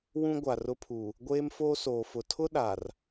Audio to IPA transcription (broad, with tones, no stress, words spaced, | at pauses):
wũ˦ɡʷa˨ rʊ˦pʰu˨ | ɡʷeː˦mfoː˦soː˨ fʊ˨tʰʊ˦ ɗa˨r